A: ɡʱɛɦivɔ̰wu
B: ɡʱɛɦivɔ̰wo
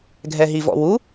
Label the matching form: A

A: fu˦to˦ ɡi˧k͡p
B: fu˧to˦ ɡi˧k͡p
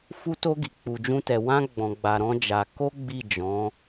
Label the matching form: A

